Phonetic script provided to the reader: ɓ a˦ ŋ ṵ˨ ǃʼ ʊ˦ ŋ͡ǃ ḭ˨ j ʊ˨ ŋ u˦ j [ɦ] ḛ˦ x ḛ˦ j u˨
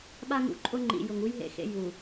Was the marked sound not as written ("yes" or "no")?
no